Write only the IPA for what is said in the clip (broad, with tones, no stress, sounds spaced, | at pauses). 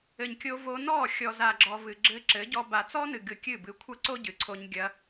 ɘ˨ ɲ kʲ o˧ v o˧ n ɔ˦˨ xʲ ɔ˨ z a˨ ɡ͡ǁ ɔ˨ v ɨ˨ ɡ͡ǁ ɘ˧ ǁ ɘ˨˦ ɟ ɔ˧ b a˨ t͡s ɔ˦ n ɨ˨ ɡ ɨ˧ kʲ ɨ˦˨ b ɨ˧ kʷʰ ɐ˦ ǀ o˦ ɟ ɨ˨ ǀʰ o˧ ɲ ɡʲ ɐ˧